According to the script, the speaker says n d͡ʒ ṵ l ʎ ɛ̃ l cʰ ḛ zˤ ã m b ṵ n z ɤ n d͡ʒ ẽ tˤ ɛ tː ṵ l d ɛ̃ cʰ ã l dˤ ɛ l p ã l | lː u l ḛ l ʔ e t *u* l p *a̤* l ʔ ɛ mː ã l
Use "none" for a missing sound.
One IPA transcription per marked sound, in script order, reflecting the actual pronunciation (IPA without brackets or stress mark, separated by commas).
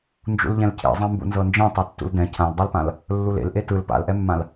ɯ, a̰